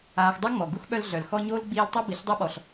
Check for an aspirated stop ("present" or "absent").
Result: absent